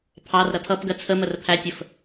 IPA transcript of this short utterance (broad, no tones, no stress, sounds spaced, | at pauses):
pʰ ɑ r ɾ ʌ tʰ ʌ p ɡ ɜ t͡sʰ ə m ə r pʰ æ tʲ ə f